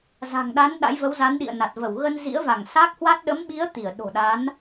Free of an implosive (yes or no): no